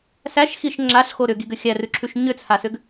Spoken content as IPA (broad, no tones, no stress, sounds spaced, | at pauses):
s æ ʃ x i ʃ ŋ͡ǁ a ɬ x o ɾ ʏ ɡ i ɡ ʏ xʲ æ r ʉ ǁʰ ʉ ʃ ɲ ʏ t͡sʰ a s ʏ ɡ